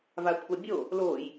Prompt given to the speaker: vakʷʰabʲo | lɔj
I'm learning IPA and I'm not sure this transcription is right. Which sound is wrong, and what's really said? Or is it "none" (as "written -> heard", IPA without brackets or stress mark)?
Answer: ɔ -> o